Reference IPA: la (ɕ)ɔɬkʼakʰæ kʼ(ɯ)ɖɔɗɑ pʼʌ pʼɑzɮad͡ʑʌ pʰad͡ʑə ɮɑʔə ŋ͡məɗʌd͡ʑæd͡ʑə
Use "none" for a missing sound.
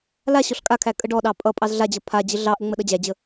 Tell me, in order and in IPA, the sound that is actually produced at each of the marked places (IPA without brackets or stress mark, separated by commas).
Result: ɕ, ə